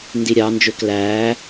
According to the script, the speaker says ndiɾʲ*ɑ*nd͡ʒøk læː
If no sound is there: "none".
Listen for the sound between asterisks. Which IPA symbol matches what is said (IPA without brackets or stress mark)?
ɑ